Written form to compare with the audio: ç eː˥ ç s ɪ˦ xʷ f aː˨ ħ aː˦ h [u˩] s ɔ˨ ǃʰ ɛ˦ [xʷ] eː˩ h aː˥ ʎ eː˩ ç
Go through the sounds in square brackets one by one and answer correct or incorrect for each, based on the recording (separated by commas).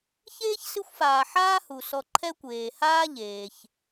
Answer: correct, incorrect